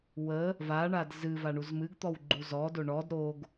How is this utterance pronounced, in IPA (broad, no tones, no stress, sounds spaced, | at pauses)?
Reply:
w ə | v a ɳ a d z ɨ v a ɳ u z m ɨ ɡ t̪ ɔ w ɡ͡ǃ u z ɔ d o ɳ ɔ d ɾ o ɡ